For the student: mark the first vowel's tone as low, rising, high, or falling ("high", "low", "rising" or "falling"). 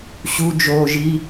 low